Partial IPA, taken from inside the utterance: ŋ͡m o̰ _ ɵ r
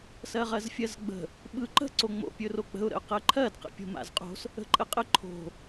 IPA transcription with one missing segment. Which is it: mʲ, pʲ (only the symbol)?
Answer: pʲ